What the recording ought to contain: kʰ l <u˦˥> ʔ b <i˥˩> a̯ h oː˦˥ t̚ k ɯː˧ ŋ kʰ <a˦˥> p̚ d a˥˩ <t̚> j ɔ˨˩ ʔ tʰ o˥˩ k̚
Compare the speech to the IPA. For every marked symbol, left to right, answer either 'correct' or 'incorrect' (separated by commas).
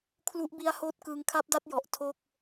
correct, incorrect, correct, correct